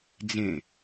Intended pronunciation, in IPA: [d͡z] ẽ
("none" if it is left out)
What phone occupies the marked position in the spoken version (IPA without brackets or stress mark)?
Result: d͡z